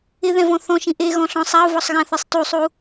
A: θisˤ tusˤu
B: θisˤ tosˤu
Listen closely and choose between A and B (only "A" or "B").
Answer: A